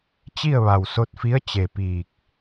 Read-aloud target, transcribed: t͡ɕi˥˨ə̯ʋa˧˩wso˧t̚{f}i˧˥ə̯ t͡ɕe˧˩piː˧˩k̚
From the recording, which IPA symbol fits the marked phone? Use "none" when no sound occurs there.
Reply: f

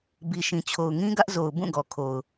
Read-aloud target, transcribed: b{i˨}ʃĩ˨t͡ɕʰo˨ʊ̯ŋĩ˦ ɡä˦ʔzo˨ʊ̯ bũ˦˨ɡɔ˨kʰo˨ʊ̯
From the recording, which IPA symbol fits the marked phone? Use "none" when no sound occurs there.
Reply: i˨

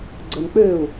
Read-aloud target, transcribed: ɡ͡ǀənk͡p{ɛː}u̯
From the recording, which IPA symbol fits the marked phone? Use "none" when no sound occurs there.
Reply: øː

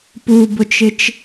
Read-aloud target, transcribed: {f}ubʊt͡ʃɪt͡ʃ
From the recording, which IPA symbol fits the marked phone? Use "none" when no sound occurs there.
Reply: p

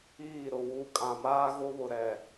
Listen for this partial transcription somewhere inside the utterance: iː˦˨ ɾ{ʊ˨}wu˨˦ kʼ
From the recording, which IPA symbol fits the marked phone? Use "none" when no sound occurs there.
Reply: ʊ˨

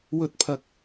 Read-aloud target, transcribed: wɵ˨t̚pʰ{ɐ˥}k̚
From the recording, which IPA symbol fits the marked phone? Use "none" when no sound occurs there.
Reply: ɐ˨˥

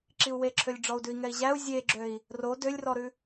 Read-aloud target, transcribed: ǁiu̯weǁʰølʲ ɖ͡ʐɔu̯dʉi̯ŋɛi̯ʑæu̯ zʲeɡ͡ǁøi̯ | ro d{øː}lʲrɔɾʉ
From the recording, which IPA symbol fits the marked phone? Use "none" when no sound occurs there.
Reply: ø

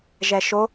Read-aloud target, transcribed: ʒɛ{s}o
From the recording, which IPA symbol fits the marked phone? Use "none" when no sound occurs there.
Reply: ʃ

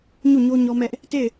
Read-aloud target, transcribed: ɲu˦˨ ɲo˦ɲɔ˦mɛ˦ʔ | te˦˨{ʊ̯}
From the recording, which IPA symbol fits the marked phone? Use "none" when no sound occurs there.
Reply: ɪ̯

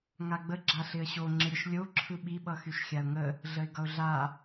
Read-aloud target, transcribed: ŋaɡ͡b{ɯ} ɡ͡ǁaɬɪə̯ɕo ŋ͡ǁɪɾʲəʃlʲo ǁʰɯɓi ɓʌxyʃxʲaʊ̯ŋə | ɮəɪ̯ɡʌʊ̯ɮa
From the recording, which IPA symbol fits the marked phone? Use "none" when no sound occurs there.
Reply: ə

